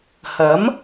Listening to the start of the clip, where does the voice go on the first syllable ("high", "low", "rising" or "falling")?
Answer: rising